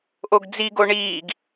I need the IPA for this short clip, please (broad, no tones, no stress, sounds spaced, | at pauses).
ʔ o ɡ d͡z i ɡ o ɳ iː ɡ